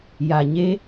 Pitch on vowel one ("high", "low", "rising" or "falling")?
low